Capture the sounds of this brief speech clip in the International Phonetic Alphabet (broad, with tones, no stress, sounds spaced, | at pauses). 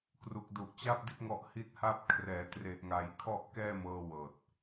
k r u˨˩ k̚ d u˨˩ ʔ t͡ɕ a˥˩ p̚ d i˥˩ t̚ ŋ ɔ˦˥ ʔ h i˥˩ t̚ h a˥˩ p̚ kʰ r ɛː˩˦ t r e˨˩ ʔ ŋ a˩˦ j kʰ ɔ˥˩ ʔ k ɛː˥˩ m ɤː˧ w ɤː˨˩ t̚